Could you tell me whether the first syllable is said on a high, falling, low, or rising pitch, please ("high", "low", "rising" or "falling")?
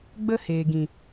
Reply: high